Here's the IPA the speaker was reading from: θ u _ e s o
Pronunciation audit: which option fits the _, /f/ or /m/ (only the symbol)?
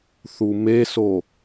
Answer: m